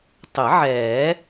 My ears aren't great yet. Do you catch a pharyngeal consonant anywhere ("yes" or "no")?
yes